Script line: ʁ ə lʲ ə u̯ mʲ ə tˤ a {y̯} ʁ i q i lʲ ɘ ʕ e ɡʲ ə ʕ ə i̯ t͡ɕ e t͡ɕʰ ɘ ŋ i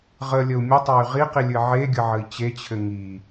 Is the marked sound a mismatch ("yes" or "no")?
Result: no